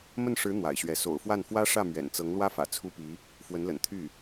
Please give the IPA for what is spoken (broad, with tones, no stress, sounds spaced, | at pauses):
m ə˥˩ n ʂ ɻ̩˧˥ n̪ w a̰˨˩ ɪ̯ ɕ ɥ ɛ˧˥ s o̰˨˩ ʊ̯ f w a˥˩ n f w ä˥ ʂ ä˥˩ m ɥ ɛ̰˨˩ n t͡s ɤ˧˥ ŋ l w ä˥ f ä̰˨˩ t͡sʰ u˥ p i˧˥ | f w ə˧˥ n l ə̰˨˩ n t̪ʰ y˥˩